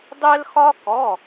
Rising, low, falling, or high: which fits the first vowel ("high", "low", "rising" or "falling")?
high